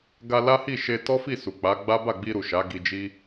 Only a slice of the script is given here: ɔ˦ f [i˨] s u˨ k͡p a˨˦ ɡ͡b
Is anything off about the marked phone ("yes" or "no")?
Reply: yes